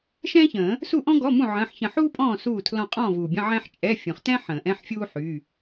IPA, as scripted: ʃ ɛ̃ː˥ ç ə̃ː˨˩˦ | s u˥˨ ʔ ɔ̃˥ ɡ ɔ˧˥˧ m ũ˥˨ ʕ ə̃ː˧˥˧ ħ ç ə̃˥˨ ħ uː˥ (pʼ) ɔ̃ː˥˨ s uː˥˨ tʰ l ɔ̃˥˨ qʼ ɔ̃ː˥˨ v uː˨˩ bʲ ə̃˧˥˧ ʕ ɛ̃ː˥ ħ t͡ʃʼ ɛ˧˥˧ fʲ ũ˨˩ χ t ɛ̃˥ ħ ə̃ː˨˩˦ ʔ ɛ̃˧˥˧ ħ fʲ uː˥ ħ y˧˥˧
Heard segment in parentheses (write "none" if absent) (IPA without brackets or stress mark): pʼ